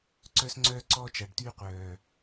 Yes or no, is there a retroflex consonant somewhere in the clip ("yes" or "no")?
yes